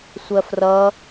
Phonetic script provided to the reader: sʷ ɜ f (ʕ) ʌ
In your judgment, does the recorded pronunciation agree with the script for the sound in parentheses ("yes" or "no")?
no